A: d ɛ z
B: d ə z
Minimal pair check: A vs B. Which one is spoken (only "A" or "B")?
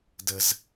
B